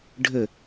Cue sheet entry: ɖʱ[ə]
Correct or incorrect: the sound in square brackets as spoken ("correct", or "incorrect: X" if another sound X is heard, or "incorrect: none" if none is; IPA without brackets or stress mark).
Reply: correct